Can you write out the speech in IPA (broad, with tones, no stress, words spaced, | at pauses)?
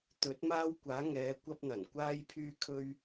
t̪ɵ˨˥t̚maː˥wkʷaː˨˥ ŋɛː˨˧ kʷɐ˥p̚n̪ɐ˨˩n kʷaː˥jpʰyː˥kʰɵ˥ɥ